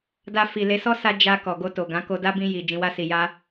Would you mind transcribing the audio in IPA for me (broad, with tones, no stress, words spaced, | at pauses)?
da˧fi˨ le˨˦sɔ˦ sa˦ d͡ʒa˧ kɔ˨ɡo˧to˨ ɡã˨˦ko˧da˦ bĩ˧ji˨ d͡ʒĩ˧wa˦si˧ja˦